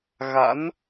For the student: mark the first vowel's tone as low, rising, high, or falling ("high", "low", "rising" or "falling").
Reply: rising